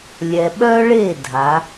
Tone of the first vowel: low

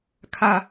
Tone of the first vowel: falling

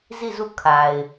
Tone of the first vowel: falling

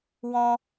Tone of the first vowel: high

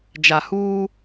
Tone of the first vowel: low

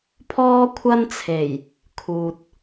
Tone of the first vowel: high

